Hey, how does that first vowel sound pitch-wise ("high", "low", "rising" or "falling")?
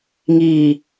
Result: low